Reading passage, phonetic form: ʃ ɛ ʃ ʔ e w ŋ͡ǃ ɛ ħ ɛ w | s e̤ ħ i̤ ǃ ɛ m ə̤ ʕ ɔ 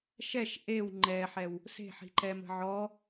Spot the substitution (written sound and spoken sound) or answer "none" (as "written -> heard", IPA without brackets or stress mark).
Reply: none